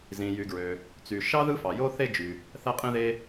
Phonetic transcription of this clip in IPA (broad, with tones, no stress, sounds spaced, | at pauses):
z ĩ˩ j y˩ ɡ ɹ ø˩ | t͡s y˩ ʃ ɑ˥ ð ɯ˥ f ɑ˩ j o˥ θ e˥ d͡ʒ y˩ | θ æ˥ qʼ ĩ˥ ð e˥